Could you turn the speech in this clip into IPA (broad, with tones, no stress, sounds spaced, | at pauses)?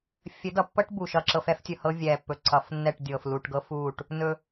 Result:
fʲ ɘ˨˦ d ʌ˨ pː ɤ˦ ʈ b u˨ ʃ ʌ˦˨ ǁ ɤ˦ f ɛ˦ f tʲ ɵ˨ h ɤ˦ vʲ ɛː˨ pː ɵ˨ ǀ ʌ˨˦ f nː ɛ˦˨ ʈ dʲ ɤː˨ f l u˨ ʈ ɡ ɤ˦ f uː˦˨ ʈ | n ɵ˦